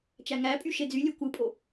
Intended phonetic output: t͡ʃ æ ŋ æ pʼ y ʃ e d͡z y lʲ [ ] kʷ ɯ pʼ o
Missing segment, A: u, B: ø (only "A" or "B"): B